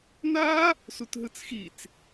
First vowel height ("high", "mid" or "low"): low